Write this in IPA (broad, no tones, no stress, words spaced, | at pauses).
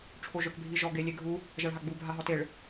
ʈ͡ʂʰoʒœkbʱiʒɔ ɡelʲeɡʱu | ʒaɭɦaɡ͡bu bʱaɦɔteɭ